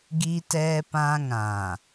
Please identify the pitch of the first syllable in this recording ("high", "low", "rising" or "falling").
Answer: high